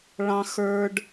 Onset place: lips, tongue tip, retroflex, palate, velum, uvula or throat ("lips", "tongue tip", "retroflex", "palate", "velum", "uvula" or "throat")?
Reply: retroflex